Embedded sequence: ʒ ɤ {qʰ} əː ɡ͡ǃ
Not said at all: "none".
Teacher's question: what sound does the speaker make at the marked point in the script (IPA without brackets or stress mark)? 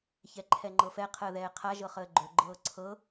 χ